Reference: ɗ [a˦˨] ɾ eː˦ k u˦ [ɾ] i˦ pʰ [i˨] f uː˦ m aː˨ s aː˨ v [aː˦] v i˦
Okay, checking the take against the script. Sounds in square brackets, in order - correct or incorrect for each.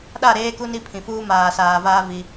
correct, incorrect, incorrect, correct

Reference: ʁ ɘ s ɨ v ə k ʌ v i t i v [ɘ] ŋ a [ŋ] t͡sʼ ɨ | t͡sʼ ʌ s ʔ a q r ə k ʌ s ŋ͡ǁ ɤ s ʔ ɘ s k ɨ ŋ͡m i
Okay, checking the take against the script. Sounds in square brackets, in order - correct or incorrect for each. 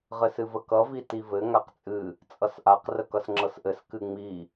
correct, incorrect

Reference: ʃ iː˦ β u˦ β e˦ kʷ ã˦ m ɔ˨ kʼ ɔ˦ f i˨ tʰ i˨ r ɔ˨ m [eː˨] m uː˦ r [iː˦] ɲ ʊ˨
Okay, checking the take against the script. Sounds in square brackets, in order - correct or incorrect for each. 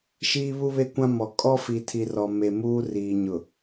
incorrect, incorrect

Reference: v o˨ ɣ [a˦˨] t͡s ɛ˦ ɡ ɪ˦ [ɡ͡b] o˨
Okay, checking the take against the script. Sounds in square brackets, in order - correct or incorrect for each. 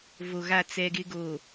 correct, incorrect

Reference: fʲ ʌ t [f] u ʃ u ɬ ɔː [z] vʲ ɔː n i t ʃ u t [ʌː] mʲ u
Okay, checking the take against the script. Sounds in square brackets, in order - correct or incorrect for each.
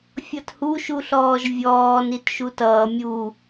incorrect, incorrect, correct

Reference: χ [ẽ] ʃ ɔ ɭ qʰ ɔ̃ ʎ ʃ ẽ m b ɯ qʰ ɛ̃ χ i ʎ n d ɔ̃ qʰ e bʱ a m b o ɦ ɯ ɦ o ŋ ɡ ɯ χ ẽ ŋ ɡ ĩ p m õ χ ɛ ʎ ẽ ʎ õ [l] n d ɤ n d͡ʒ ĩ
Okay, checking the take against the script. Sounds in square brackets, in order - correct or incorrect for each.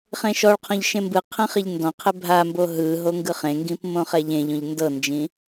correct, incorrect

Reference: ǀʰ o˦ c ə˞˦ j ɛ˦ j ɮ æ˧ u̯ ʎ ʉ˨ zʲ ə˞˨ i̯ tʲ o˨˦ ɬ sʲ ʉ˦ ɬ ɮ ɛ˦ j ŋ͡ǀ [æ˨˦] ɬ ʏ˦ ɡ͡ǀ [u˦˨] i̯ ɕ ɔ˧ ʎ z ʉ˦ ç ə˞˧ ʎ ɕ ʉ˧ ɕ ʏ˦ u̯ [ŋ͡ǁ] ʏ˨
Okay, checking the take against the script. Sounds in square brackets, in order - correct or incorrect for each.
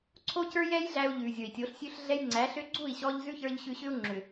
correct, correct, correct

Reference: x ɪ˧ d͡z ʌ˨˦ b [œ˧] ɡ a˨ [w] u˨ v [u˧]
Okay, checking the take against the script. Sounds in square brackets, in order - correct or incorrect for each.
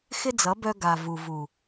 correct, incorrect, incorrect

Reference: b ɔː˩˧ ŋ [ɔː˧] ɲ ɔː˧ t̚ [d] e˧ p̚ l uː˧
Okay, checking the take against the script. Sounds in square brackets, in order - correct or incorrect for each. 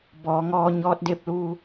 correct, correct

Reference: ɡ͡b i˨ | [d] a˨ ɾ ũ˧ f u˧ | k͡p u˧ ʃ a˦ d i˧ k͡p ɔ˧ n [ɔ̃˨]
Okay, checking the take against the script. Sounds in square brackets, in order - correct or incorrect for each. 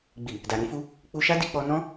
correct, incorrect

